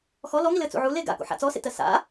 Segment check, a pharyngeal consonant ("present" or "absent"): present